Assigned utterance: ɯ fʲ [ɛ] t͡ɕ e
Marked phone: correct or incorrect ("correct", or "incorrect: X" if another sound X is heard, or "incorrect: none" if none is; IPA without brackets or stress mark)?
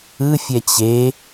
correct